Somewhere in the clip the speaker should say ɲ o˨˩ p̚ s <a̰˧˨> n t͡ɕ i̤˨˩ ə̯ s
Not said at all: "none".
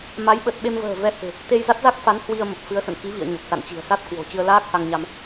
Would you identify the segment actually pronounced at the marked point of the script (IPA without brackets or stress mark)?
a̰˧˨